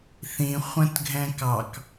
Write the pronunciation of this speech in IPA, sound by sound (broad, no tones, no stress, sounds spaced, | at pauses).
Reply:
θ ĩ χʷ ə̃ t ɡʱ ɛ̃ k ɑ k